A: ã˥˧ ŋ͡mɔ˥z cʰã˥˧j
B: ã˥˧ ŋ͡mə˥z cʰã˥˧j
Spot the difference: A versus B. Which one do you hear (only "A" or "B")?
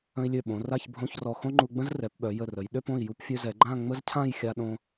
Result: B